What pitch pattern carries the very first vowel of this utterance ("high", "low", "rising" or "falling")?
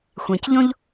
low